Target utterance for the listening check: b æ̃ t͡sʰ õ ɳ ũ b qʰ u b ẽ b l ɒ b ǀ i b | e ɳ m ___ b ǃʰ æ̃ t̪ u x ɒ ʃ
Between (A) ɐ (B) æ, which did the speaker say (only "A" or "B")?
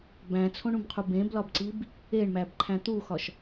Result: B